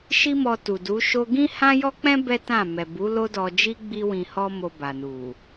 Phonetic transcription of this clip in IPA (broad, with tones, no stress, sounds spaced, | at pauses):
ʃ i˦ m ɔ˧ t u˨ d u˨˦ ʃ o˦ ɡ ĩ˦ h ã˦ j ɔ˦ k͡p ɛ̃˦ b ɛ˦ t ã˦˨ m ɛ˨ b u˨˦ l o˦ d ɔ˧ d͡ʒ i˦ ɡ͡b i˦ w ĩ˧ h ɔ˦ m o˧ b a˨ n u˨